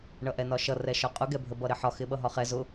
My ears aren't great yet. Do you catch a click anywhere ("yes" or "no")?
no